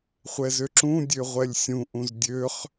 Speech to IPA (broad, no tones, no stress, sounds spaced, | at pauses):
χʷ ɛ z ø ǁ ũ dʲ ø ʁʷ ɛ lʲ sʲ ũ ʔ ũ z dʲ ø χ